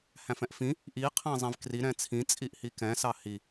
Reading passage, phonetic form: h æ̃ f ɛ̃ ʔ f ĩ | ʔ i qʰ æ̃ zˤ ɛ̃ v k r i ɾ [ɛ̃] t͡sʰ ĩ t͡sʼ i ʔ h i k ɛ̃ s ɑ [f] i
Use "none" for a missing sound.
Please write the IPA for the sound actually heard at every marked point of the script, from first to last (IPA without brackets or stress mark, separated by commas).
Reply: ɛ̃, h